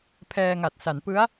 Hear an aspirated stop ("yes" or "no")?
yes